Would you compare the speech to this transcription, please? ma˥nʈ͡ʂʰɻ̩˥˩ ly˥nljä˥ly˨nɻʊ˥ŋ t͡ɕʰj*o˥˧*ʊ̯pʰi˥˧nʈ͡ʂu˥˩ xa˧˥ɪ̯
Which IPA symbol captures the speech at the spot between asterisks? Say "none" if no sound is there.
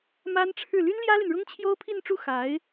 o˥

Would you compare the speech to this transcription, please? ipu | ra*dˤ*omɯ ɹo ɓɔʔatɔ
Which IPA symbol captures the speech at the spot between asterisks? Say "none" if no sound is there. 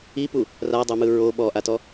dˤ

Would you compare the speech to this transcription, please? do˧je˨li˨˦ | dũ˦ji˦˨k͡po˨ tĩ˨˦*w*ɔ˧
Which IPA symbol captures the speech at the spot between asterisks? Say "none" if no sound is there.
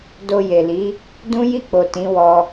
w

